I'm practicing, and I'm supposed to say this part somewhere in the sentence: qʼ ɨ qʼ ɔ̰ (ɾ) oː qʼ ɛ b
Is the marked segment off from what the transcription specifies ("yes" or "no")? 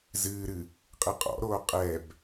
no